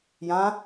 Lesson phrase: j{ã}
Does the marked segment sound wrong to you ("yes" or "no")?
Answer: no